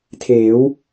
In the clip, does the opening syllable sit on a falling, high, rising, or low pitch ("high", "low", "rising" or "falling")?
rising